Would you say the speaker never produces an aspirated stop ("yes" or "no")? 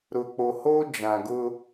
yes